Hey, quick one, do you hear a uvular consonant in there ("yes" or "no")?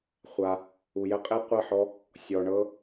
yes